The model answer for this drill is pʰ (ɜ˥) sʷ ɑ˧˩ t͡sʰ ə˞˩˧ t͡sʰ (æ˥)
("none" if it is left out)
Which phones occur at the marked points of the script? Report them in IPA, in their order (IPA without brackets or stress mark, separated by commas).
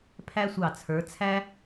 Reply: æ˥, æ˥